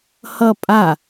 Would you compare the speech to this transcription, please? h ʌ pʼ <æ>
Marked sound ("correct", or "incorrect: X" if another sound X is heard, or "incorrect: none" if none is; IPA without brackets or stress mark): incorrect: a